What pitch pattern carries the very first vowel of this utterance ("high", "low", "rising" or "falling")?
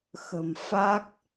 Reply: low